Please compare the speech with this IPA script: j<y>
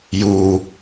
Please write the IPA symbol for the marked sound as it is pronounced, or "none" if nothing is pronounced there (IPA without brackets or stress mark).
u